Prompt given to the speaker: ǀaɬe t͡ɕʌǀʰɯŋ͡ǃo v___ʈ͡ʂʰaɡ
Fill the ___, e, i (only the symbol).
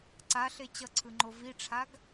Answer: i